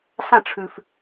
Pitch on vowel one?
falling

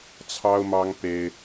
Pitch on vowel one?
high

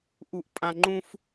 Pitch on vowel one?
high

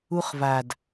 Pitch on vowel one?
high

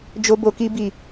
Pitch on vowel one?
high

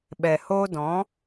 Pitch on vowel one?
low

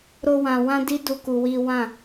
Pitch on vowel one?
high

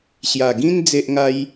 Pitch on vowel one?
low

